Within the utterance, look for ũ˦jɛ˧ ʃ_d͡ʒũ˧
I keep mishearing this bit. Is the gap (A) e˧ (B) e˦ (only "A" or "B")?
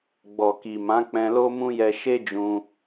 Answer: B